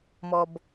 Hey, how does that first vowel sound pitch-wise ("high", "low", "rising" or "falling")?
low